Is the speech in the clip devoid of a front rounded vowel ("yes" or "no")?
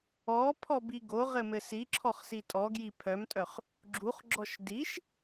no